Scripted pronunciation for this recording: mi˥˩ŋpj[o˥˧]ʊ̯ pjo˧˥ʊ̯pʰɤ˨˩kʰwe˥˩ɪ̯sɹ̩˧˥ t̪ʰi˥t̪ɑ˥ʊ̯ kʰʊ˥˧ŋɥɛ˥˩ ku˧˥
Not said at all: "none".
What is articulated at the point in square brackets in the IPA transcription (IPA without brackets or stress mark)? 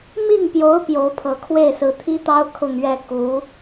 o˧˥